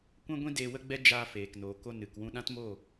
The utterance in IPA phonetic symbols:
kʷ ɛ̃˦ ɡʷ ĩ˦ d eː˧ w ə˦ ɡ͡b ɛ˦ d͡ʒ aː˧ f eː˨ k n oː˨ k o˧ n ɨ˨ k w ũ˧ ɗ ã˦ t m o˦˨

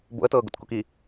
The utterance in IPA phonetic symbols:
b o̰ ə̯ t ɤː ɡ o̰ t k u k i

